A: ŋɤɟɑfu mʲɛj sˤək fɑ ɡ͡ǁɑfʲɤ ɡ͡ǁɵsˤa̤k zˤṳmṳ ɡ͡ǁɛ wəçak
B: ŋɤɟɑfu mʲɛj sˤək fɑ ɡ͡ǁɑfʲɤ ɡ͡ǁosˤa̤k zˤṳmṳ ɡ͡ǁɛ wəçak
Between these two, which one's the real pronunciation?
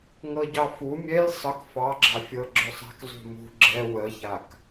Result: A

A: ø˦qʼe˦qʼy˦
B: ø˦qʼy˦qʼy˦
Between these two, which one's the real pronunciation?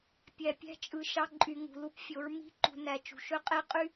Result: A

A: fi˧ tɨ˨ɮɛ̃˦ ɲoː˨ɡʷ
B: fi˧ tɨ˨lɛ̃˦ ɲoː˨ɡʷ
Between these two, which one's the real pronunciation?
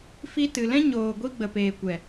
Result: B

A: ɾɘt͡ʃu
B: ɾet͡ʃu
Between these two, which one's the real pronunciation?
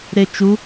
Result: B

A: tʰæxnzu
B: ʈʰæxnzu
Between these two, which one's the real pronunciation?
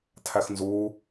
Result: A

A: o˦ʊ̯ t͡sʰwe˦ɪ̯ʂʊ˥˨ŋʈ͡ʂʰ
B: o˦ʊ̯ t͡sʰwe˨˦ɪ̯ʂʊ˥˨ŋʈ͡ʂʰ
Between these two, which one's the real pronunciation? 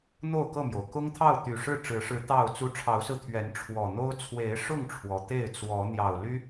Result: B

